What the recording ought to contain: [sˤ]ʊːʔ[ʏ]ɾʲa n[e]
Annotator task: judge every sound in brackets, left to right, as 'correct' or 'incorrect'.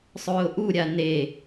correct, incorrect: u, correct

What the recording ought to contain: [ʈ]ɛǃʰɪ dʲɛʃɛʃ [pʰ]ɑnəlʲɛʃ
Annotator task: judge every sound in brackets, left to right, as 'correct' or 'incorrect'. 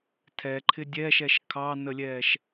incorrect: tʰ, incorrect: kʰ

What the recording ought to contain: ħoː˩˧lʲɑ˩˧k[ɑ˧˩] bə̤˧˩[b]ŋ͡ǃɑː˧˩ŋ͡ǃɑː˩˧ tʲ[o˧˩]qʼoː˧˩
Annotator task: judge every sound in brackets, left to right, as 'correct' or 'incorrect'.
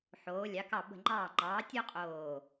correct, incorrect: none, incorrect: o˥

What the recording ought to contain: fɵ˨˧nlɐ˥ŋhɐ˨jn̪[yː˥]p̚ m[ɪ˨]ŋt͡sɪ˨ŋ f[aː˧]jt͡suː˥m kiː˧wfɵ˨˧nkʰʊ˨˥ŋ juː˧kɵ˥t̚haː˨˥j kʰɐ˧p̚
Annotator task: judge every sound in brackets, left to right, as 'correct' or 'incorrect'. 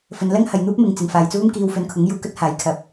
incorrect: uː˥, correct, correct

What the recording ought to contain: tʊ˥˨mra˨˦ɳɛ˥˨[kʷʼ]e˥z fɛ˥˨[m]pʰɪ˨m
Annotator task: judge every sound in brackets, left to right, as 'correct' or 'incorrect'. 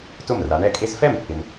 incorrect: kʼ, correct

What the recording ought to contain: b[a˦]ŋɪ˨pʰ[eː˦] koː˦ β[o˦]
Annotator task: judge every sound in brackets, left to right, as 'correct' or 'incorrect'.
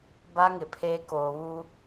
correct, correct, incorrect: u˦

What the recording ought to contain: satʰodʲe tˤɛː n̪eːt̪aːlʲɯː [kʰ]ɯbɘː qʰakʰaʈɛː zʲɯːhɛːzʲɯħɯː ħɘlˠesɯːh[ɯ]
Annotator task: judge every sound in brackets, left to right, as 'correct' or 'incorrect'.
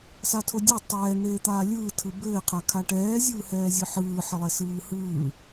incorrect: tʰ, incorrect: ɯː

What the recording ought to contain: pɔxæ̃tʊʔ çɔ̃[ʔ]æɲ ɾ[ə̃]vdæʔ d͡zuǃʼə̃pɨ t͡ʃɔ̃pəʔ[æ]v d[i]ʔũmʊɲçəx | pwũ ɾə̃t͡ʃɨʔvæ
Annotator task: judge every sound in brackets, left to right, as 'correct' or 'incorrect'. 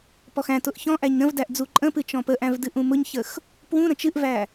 correct, correct, incorrect: æ̃, incorrect: ɨ

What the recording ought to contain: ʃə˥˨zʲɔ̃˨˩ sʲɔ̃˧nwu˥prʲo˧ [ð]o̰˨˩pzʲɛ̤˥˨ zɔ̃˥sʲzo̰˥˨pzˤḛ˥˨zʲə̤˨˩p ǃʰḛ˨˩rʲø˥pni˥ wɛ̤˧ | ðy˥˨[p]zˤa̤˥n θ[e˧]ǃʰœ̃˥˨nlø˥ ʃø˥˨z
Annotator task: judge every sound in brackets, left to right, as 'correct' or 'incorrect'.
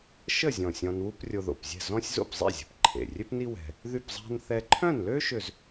correct, correct, incorrect: ɛ˧

